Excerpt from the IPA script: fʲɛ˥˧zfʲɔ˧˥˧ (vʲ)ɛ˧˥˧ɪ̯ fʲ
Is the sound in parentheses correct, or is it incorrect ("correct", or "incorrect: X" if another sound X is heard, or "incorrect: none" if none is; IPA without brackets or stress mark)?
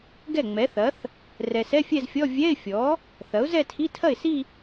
correct